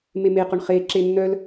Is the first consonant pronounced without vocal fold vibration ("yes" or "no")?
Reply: no